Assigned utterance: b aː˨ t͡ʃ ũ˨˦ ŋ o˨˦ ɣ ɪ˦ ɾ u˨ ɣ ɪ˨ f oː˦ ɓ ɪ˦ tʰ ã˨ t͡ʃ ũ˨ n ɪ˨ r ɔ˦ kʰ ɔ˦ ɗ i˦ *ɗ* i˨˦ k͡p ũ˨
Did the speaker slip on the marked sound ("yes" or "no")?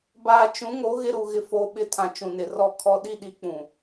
no